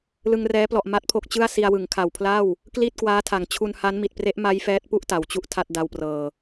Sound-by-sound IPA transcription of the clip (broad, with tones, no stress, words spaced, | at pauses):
lɯ˧ŋrɛː˦˥plɔ˨˩ʔ ma˦˥t̚pʰo˦˥k̚t͡ɕɯ˥˩a̯ si˧a̯wɯ˩˦ŋkʰa˨˩wpʰla˥˩w | kli˥˩t̚ kwaː˦˥tʰa˨˩ŋ t͡ɕʰu˧nha˦˥nmi˨˩t̚ pre˦˥ʔma˦˥j fɛː˦˥t̚pu˥˩ʔ ta˩˦wt͡ɕu˥˩ʔtʰa˥˩t̚ da˧wprɤː˨˩